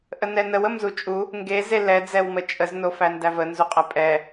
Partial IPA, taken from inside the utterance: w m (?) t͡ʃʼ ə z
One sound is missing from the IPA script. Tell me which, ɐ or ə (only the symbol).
ə